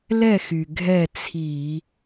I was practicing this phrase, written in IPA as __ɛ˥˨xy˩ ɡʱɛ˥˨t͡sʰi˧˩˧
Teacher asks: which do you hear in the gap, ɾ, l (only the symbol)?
l